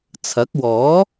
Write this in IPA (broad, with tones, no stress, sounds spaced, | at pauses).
t͡sʰ ɐ˨˥ k̚ w ɔː˨˥